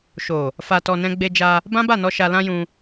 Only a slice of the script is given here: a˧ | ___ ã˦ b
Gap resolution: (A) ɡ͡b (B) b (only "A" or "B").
B